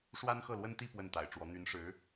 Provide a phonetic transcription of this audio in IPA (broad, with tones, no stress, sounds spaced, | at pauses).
ʂ w a˥ n x ɤ˥˩ l w ə˥ n t̪ i˥˧ p w ə˥˩ n t̪ a̰˨˩ ɪ̯ ʈ͡ʂ w ɔ˧˥ n̪ y˧˥ n ʂ ɻ̩˧˥